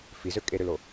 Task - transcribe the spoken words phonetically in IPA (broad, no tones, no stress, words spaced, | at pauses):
fizø kʼeɾølo